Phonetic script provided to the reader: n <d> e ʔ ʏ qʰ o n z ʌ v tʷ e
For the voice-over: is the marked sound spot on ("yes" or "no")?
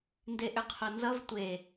yes